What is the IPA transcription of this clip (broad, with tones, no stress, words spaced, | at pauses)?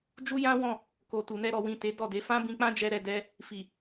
d͡ʒu˦jã˦wɔ̃˦˨ | ko˨tu˨nɛ˧ ɾɔ˨wĩ˨ te˨˦dɔ˦˨de˨˦ fã˦bĩ˧k͡pã˦ d͡ʒɛ˦ɾɛ˧dɛ˦ | fi˨